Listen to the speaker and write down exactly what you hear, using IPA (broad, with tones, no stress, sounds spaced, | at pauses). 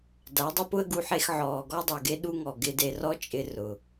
d a˨˦ dˤ ʊ˦ p ʊ˦ ə̯ ɡ u˧ ħ e˧ x ʕ ɔː˨ ɡ ɔ˦ dˤ o˨ ɡ e˦ ɗ u˦ ŋ ɔ˨ ɡ ɪ˧ d e˧ r ɔ˦ t͡ʃʼ ɪ˧ r ʊ˨